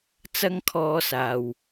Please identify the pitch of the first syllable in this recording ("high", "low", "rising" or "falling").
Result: high